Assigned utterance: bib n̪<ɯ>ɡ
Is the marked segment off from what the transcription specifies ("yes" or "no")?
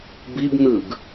no